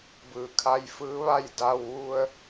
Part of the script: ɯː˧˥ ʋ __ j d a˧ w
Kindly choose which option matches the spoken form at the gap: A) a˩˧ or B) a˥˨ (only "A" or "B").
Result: B